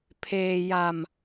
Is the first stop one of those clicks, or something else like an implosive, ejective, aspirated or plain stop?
aspirated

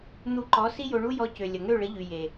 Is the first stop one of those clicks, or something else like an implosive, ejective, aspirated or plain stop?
click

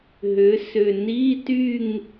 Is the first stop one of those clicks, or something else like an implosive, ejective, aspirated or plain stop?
plain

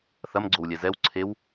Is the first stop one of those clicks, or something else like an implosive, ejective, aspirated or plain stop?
click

